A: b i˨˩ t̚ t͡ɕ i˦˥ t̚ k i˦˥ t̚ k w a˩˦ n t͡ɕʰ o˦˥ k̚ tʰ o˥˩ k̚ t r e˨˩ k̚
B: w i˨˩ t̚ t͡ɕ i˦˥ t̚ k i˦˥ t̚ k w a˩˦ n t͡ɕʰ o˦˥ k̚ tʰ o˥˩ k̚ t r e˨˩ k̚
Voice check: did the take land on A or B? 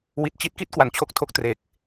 B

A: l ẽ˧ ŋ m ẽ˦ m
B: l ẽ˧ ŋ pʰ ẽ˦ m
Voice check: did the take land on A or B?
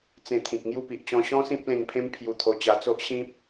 B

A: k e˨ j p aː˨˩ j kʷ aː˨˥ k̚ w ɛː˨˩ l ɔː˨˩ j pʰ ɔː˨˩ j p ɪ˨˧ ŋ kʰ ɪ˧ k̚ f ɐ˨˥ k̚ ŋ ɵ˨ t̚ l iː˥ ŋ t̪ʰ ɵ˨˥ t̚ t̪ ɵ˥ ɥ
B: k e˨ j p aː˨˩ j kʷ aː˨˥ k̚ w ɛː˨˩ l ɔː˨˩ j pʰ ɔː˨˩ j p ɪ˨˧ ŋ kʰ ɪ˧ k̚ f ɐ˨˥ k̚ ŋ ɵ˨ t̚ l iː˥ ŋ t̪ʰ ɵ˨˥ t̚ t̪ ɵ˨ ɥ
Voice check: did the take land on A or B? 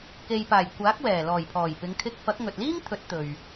B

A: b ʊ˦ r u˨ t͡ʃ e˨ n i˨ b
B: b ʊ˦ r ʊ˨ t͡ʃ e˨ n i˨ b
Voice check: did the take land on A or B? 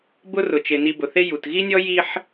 B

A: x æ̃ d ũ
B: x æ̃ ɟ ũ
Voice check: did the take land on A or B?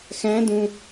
A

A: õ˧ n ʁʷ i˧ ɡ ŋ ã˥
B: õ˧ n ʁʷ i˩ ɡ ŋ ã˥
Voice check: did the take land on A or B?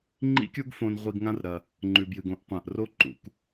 A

